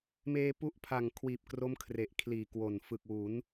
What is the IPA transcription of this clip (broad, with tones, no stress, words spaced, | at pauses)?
meː˧pu˦˥ʔpʰa˨˩ŋ kʰwiː˨˩p̚kro˦˥m kʰre˨˩ʔkʰliː˨˩ kwo˨˩n fɯ˨˩k̚wu˩˦n